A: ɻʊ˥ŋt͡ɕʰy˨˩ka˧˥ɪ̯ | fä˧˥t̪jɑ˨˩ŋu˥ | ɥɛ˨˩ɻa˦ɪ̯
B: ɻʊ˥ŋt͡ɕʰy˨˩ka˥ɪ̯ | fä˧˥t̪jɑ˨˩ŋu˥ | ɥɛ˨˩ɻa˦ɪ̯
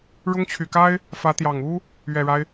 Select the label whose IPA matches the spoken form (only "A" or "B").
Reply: B